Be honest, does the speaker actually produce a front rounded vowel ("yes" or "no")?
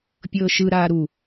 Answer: no